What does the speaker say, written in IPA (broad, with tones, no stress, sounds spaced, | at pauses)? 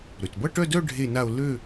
ɾ ø˩ t b ʌ˥˧ ʈ œ˥˧ d œ˥˧ ɖʱ e˥˧ n a˥˧ o̯ l ø˥˧